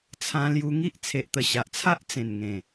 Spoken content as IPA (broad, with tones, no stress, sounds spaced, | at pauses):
t͡sʰ ã˧ l j u˧ ŋ i˦ ʔ t͡sʰ e˨ ʔ t̪ ə˨˩ ɕ a˨ ʔ t͡sʰ a˦ ʔ t͡s ẽ˨˩ n ŋ ẽ˨˩